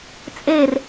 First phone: t͡sʼ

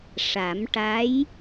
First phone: ʂ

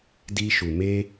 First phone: d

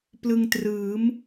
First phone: p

